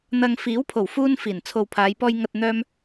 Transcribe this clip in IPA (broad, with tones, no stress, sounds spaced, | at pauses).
n̪ ɐ˨ ŋ f iː˨˥ w pʰ o˨˩ w f uː˧ n f iː˨˩ n t͡sʰ o˨ w pʰ aː˨˧ j p ɔː˧ j ŋ ɐ˨ t̚ n̪ œː˧ m